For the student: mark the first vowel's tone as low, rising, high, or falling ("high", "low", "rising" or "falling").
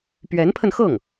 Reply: rising